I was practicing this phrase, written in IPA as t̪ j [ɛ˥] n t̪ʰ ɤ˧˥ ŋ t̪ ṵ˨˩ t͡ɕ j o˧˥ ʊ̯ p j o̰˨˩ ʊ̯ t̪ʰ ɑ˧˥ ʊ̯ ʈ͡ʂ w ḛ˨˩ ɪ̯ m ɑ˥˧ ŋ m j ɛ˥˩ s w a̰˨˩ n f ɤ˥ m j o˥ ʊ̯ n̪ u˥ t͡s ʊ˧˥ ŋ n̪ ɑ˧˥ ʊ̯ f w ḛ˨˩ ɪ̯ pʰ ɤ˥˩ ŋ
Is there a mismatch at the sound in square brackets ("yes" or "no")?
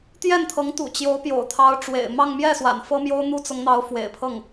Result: yes